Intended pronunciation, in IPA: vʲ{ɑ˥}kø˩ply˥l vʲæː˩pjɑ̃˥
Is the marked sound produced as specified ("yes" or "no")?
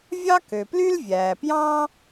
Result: yes